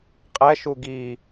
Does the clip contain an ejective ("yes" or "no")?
yes